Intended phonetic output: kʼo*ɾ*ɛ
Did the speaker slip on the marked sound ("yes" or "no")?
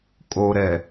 no